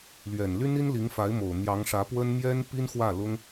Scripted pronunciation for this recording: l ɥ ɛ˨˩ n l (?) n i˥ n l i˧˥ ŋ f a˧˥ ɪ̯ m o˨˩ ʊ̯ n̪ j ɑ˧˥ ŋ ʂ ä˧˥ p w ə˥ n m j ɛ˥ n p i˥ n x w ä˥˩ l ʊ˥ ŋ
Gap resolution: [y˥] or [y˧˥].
y˥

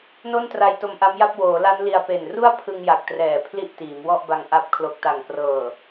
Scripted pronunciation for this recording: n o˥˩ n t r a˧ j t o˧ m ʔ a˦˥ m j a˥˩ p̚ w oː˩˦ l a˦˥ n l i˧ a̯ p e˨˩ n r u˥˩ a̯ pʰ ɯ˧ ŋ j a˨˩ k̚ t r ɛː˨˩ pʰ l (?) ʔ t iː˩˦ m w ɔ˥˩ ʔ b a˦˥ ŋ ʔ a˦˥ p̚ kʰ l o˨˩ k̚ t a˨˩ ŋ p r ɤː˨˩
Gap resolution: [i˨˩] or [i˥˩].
i˥˩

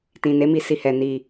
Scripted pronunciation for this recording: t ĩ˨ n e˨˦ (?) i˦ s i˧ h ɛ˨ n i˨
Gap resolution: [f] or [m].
m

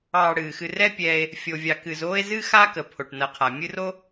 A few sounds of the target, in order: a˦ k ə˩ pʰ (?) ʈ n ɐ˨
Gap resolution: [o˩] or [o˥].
o˩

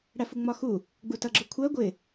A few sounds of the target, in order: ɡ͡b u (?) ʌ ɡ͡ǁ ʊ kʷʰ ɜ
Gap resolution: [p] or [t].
t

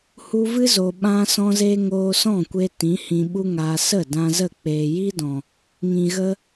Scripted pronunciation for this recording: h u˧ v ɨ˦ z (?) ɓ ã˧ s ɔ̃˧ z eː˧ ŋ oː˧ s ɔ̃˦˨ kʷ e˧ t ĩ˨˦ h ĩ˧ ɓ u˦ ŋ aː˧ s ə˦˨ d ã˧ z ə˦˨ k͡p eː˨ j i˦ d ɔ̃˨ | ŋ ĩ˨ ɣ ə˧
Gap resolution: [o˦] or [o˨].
o˨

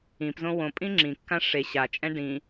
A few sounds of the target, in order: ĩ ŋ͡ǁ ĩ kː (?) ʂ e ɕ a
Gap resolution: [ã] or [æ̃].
ã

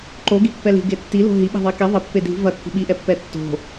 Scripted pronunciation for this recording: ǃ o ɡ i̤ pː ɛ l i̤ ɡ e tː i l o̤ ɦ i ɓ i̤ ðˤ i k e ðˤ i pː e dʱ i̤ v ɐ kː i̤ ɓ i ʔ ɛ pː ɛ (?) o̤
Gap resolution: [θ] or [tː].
tː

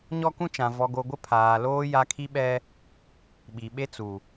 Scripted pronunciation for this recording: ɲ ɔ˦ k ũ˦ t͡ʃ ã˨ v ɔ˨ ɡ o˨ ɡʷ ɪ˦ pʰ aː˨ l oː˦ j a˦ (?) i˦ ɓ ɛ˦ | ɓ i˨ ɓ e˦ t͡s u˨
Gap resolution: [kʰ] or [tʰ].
kʰ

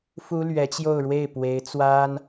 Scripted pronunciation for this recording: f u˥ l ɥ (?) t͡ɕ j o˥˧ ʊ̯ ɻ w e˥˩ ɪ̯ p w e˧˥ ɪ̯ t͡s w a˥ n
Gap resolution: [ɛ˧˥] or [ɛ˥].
ɛ˧˥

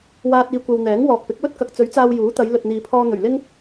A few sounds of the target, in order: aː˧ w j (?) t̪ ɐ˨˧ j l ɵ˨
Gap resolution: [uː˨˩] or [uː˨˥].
uː˨˥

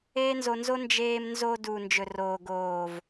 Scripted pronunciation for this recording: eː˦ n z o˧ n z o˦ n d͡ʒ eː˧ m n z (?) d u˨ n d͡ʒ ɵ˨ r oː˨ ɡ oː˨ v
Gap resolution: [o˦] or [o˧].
o˧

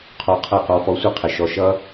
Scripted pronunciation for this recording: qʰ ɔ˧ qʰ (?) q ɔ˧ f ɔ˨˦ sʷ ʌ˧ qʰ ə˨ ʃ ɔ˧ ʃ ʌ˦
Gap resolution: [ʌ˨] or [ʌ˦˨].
ʌ˦˨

